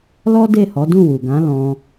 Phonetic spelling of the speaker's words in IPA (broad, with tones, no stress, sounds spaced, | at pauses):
l ɔ˦ d e˦˨ h ɔ˨˦ d ũ˦˨ w u˨ ɡ ã˨˦ l ɔ̃˧